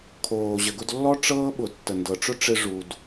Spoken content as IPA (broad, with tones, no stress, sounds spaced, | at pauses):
kʰ oː˩ ʑ ə˩ ɡ ʊ˧ d lː ɔ˥ ʈ͡ʂ ɤː˥ ɓ ʊ˩ tː ə˩ n d ɤ˩ ʈ͡ʂ ʊ˥ ʈ͡ʂ ɪ˧ ʐ u˩ d